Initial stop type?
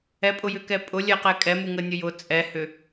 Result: ejective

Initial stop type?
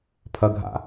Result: aspirated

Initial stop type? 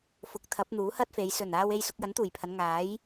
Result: plain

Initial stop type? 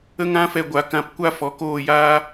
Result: plain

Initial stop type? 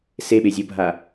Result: implosive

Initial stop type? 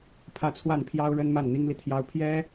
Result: aspirated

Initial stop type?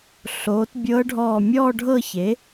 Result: plain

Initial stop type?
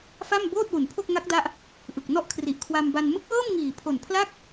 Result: plain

